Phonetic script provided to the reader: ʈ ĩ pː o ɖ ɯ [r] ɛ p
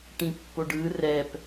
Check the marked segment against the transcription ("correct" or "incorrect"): correct